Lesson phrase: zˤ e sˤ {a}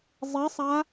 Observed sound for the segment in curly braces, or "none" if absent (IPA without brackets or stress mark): a